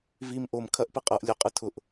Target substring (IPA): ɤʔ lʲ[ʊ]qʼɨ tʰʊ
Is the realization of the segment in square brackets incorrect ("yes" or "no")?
no